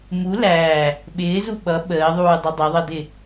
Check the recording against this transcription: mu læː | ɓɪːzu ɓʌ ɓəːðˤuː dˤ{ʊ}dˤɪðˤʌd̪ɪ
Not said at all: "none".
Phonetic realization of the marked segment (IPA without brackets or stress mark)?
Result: ʊ